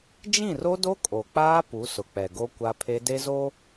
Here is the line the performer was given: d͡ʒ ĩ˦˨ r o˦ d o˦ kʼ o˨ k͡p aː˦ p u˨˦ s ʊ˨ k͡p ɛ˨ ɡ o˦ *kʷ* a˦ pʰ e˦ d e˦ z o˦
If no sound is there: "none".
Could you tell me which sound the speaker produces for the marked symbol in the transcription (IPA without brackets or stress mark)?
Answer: kʷ